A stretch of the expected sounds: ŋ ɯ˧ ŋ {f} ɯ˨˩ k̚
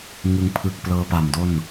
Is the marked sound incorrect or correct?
incorrect: pʰ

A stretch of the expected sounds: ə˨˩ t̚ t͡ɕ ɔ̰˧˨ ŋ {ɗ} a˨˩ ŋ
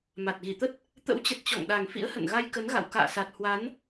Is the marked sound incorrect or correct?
correct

